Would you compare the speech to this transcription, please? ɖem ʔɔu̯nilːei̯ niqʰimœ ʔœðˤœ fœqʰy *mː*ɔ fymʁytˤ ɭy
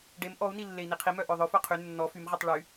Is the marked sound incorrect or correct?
incorrect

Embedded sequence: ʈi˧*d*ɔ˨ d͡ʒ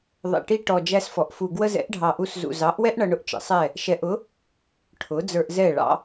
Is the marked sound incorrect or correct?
incorrect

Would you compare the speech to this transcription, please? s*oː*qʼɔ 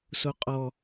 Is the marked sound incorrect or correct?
incorrect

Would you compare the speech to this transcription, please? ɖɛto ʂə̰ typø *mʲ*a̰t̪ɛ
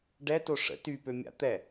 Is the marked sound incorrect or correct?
correct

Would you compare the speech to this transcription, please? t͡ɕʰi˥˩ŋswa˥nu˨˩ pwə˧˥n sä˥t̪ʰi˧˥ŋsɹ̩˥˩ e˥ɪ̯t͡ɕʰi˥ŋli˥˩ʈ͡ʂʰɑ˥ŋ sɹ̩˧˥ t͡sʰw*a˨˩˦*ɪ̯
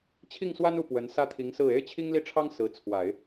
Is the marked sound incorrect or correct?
correct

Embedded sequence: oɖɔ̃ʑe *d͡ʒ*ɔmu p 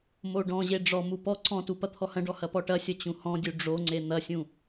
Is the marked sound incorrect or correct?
incorrect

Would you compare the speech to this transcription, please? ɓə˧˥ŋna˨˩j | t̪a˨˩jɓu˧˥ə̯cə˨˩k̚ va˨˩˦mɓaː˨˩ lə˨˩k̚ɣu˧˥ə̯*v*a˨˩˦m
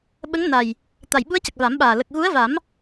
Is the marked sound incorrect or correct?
correct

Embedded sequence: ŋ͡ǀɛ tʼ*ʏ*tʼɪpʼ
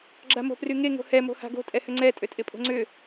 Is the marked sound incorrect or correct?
correct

